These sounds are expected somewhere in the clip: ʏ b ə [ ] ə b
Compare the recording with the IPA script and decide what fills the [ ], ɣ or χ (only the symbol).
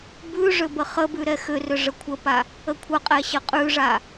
χ